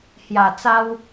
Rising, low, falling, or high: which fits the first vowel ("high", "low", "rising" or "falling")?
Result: low